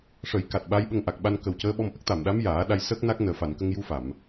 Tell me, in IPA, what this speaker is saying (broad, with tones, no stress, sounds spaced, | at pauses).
ʂ ə˨˩˦ j k a˨˩ t̚ ɓ a˧˥ j ɓ ə˧ ŋ ʔ a˨˩ k̚ ɓ a˧ n k ə˨˩ w c əː˧˥ ɓ ɔ˧ m ʔ ə˦˥ k̚ t̪ a˨˩˨ m ɗ a˧˥ m j aː˨˩˦ ɗ a˧ j s ə˦˥ k̚ n a˦˥ k̚ n əː˨˩ f a˨˩˨ n k ə˧ ŋ j u˧ f a˨˩˨ m